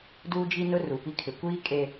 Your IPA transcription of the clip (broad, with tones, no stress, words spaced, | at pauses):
duː˦d͡ʒi˦nʊ˦ ru˨pi˦kʰɪ˨ kʷiː˦ kʼe˦